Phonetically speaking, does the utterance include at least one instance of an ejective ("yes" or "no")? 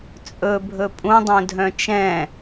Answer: yes